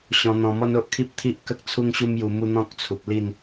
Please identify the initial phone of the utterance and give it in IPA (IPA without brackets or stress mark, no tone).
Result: ɕ